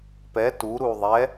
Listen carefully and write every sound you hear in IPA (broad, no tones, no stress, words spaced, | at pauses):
pɛ tu ɾuðˤɛ